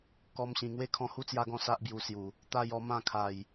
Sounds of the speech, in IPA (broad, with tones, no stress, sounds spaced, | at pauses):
k ɔ˧ m ɕ ĩ˨˩ ŋ w e˦ kʰ ɔ̃˧ h u˦ t͡s j a˧ ɡ ɔ̃˧ s a˦ ʔ b j u˧ s j u˨˩ | t̪ a˧ j ɔ˧ m ã˥˧ kʰ a˨˩ j